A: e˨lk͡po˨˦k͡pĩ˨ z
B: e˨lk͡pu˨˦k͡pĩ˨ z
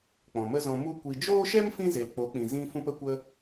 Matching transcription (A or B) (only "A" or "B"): A